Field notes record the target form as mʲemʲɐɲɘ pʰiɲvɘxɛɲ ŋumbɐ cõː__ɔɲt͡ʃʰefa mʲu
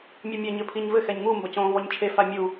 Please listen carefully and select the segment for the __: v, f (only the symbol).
v